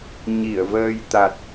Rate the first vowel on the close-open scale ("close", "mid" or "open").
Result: close